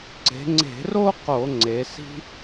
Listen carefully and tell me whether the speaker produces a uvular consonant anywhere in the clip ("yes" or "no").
yes